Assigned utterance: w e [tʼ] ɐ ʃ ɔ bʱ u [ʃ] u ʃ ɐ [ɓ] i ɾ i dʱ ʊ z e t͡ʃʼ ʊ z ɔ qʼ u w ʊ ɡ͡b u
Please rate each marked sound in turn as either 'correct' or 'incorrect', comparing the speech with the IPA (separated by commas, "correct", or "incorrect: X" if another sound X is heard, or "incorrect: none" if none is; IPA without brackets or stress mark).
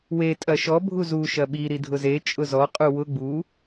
correct, incorrect: z, correct